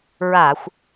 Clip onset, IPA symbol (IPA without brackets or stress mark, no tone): ɹ